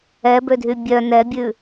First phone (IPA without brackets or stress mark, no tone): ɛ